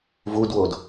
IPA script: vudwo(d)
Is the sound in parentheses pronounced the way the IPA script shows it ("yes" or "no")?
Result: yes